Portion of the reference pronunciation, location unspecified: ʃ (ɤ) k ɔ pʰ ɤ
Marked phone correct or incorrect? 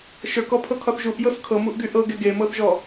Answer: incorrect